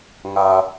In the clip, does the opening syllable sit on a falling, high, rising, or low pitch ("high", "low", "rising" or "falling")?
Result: low